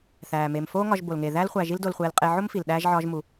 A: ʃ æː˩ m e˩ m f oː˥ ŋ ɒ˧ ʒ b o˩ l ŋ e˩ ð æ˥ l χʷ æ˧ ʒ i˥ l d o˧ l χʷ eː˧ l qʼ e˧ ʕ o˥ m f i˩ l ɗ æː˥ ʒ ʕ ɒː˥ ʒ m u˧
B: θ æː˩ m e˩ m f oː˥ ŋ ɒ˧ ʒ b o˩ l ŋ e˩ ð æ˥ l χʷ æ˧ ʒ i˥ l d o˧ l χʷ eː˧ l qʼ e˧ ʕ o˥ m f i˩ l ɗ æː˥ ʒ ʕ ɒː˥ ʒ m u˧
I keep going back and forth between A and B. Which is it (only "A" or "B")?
B